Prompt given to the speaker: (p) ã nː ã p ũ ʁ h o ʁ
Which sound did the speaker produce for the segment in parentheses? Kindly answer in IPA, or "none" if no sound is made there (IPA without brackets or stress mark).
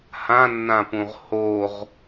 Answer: h